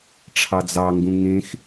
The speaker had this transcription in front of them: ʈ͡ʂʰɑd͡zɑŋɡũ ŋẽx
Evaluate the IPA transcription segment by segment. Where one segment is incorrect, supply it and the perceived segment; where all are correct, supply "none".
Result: none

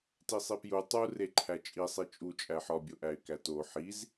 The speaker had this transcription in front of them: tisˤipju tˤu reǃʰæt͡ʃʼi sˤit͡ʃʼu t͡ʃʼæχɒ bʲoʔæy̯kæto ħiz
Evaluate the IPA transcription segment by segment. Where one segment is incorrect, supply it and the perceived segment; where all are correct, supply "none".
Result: χ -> ħ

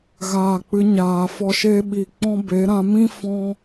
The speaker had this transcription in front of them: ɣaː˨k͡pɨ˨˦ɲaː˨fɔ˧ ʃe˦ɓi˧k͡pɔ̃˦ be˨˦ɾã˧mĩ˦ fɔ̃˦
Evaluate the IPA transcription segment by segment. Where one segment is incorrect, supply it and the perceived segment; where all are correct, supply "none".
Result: none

